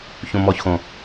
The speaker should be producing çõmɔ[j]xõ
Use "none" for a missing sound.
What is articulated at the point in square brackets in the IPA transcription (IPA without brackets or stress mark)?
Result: ç